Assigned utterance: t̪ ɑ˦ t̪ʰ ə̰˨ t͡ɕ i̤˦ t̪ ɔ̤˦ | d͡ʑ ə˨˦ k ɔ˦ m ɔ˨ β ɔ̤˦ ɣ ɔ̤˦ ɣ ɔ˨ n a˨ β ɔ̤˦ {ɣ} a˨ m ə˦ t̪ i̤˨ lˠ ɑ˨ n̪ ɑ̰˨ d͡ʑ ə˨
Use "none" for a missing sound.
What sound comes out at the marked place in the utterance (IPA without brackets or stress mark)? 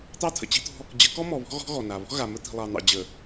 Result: ɣ